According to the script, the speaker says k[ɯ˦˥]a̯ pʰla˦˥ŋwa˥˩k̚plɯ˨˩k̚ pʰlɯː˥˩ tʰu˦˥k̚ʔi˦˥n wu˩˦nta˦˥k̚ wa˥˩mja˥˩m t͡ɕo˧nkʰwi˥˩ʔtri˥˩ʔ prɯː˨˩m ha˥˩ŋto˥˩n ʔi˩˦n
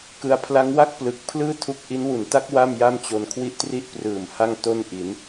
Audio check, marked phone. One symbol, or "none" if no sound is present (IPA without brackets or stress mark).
ɯ˧